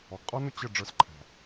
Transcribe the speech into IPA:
ɔ˨ ɡ qʼ ɔ˦ n ʊ˦ t͡ɕ ə˦˨ ɖ͡ʐ ə˞˧ s ǃʰ æ̤˨

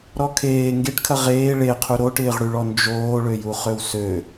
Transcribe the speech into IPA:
ɾ ɔ kʰ eː ŋ ɡ e ʈ kʰ ɐ ʁ eː ɭ e qʰ u ɾ o ʈ ɪː ʁ ɽ y ɭ ɔ n d͡ʒ oː ɭ ø j u χ ø w s ø

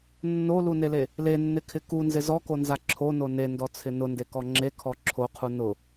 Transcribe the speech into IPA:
nː o l u n e l e | l e nː ɪ kʰ ɪ k u n z ɪ z ɔ k o n z a ǁʰ o n o n e n d ɔ t͡sʰ ɪ n ʊ n d e k ɔ ŋ͡ǁ e kʰ ɔ ǁʰ o qʰ u n ʊ

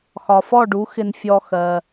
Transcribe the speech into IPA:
x ɒ˩ f ɔ˥˩ ɖ u˩˥ x ɪ˧ n fʲ ɔ˧ x ɜ˩

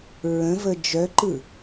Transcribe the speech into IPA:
ɹ ə̃ v ə d͡ʒ œ ǃ ɯ

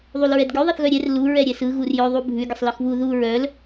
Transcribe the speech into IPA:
ðˤ u l ɹ ɛ d ɡʲ u ðˤ ɛ θ ɣ œ ɾʲ ɛ r l u ɹ ɛ ɾʲ ɛ s ɯ ɣ u r j œ ðˤ u bʱ ʉ ɡʲ ə sˤ l ɯ x β u ð u ɹ œ l

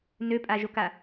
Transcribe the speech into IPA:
n ø pʼ a ʒ o k a

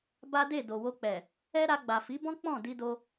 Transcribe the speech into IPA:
b a˦ d e˦˨ d o˨ w o˧ k͡p ɛ˨ | ɛ˦ ɾ a˧ ɡ͡b a˨ f i˨˦ b ɔ̃˦ k͡p ɔ̃˦˨ d i˧ d o˧

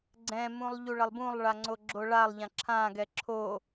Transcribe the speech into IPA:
ɡ͡ǀ ɛ̃ m ũ lˠ ʎ u ɭ ʌ lˠ b ũ lˠ ɭ a ŋ͡ǀ o ɡ͡ǁ o ɭ a lˠ ʎ ã ǁʰ ã ɡ ɛ ǁʰ o

